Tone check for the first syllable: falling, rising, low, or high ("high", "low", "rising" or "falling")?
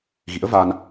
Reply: rising